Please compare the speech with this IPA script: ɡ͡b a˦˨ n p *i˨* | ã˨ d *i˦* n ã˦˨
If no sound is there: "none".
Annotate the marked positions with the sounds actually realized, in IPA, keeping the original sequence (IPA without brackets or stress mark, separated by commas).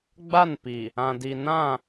i˨, i˨